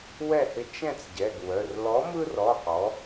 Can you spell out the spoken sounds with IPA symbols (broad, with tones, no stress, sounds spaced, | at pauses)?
w ɛ˥˨ h ɪ˦ t͡ʃ ɛ̃˥˨ t͡s ɟ ɛ˩˧˩ ɡ w œ˩˧˩ r l ɔ˨˥ m ɯ˦ r ɔ˩˧˩ q ɔ˩˧